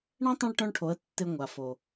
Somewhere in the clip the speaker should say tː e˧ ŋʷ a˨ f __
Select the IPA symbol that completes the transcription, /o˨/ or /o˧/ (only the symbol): o˨